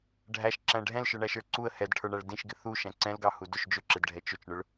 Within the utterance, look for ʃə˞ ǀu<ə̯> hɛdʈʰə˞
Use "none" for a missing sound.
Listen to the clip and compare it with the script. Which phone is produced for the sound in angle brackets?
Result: ə̯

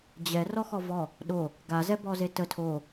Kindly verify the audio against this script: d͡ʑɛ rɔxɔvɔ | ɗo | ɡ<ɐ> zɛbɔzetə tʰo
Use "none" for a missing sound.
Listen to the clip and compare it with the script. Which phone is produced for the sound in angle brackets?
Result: a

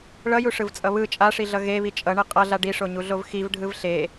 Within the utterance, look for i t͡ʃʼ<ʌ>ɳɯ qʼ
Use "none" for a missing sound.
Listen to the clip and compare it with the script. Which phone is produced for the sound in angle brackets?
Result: ʌ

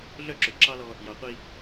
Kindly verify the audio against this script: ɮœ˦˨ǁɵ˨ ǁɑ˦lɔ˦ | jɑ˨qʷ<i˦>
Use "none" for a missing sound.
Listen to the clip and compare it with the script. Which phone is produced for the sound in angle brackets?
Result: i˦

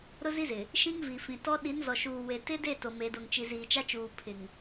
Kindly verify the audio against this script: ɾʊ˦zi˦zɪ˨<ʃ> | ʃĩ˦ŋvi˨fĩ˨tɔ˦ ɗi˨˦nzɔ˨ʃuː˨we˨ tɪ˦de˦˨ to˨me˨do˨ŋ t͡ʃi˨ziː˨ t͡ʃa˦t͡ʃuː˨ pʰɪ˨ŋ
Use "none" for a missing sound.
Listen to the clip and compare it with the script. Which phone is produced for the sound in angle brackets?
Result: none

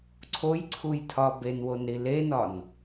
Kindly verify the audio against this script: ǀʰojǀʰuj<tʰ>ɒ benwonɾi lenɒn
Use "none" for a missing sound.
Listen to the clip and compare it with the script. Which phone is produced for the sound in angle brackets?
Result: tʰ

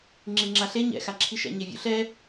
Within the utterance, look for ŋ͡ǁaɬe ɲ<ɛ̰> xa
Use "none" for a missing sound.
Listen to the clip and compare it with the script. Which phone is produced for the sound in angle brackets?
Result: ɛ̰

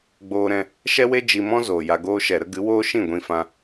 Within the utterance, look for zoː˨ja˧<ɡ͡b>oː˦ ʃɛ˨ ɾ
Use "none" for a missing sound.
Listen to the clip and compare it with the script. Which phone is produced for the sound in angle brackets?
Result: ɡ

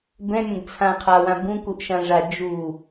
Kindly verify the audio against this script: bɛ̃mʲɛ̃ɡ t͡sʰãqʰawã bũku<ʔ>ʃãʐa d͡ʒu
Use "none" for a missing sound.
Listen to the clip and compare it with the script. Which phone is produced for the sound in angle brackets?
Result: ʔ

